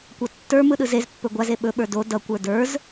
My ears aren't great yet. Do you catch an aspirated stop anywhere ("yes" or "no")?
no